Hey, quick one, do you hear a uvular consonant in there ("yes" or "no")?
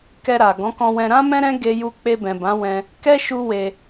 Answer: no